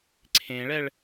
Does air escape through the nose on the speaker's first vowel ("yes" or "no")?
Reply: yes